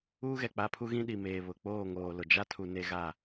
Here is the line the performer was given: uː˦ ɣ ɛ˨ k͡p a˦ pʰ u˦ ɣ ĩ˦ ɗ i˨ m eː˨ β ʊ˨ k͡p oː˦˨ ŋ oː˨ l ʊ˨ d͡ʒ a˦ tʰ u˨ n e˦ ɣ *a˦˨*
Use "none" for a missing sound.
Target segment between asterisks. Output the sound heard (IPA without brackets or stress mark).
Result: a˦˨